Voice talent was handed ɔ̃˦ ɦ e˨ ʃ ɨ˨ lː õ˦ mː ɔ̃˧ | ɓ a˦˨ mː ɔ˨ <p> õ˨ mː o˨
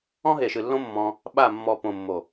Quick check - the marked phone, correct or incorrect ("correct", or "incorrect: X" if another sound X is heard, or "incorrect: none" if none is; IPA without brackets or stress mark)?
correct